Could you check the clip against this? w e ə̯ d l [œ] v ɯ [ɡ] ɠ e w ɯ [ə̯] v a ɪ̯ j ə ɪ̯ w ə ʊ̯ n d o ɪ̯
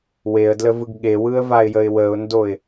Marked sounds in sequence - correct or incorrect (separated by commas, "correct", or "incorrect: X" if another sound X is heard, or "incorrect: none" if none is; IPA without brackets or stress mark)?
incorrect: ə, correct, correct